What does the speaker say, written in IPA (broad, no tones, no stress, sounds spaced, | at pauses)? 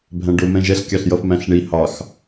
bʱ æ̃ ɖ ʊ m ɛ̃ ʒ ɛ ɬ kʲ ɑ ɬ j ʌ f m æ̃ ɬ ɳ i h ɑ x